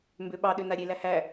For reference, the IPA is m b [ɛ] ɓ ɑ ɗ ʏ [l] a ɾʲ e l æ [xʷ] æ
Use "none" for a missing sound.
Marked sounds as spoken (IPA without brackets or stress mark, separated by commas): ø, n, h